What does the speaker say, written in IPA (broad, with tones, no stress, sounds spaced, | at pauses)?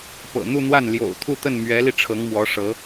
p ɤ̰˨˩ n̪ u˥˧ n̪ w a˥˩ n l j o̰˨˩ ʊ̯ t̪ʰ u˥˧ t̪ ə˥˩ n m ɥ ɛ˧˥ l i˧ ʈ͡ʂʰ ɤ˧˥ ŋ m w ɔ˧˥ ʂ ɤ˧˥